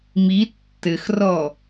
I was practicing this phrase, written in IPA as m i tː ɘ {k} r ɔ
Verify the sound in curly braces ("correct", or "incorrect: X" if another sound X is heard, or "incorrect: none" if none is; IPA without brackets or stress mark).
incorrect: x